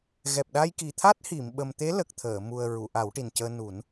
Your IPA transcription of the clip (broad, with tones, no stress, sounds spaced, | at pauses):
ɣ ɛ˨˩ p̚ ɗ a˧ j k i˨˩ t̪ʰ a˦˥ t̚ h i˨˩˨ m ɓ ə˨˩ m t̪ e˧˥ l ə˨˩ k̚ t̪ʰ əː˨˩˨ m u˨˩ ə̯ ɹ u˨˩˨ ʔ a˨˩˦ w ʈ i˨˩ n c əː˧ n u˨˩˦ n